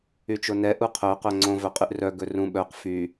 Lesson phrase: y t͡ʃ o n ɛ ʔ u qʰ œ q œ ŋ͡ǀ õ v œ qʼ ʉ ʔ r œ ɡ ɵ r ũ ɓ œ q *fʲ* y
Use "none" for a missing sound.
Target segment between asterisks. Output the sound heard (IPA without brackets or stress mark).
f